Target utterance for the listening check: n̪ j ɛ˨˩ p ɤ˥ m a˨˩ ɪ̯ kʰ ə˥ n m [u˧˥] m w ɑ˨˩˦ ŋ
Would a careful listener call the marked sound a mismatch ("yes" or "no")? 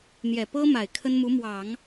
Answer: no